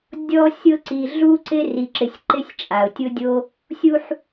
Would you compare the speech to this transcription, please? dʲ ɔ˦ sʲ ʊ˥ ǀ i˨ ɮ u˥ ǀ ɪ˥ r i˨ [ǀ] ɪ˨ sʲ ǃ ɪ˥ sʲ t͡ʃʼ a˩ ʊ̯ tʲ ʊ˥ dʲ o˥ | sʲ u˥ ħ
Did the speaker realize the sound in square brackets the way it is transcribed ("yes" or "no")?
no